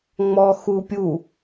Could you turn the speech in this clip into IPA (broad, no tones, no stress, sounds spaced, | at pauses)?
ŋ͡m ɔ x u pʲ u